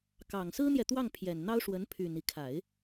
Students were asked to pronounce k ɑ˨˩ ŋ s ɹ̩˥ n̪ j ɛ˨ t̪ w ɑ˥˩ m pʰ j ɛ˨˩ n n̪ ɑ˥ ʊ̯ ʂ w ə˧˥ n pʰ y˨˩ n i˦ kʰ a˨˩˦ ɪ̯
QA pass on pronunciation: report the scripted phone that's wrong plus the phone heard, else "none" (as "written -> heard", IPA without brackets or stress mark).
m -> ŋ